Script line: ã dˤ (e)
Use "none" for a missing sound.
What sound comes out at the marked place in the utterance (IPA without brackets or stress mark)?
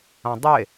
e